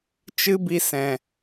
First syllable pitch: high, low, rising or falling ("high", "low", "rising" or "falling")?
high